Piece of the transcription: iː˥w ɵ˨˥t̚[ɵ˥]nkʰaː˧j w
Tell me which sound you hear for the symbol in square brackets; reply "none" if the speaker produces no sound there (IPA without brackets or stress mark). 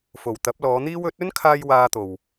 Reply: ɵ˥